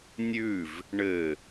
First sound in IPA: nʲ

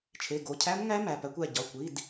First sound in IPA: t͡ʃʰ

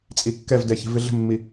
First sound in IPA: t͡sʼ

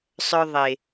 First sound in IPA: sˤ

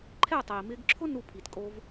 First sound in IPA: ǃʰ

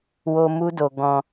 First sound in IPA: w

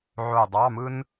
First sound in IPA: ʕ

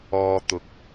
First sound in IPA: ɔː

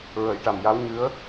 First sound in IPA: ɹ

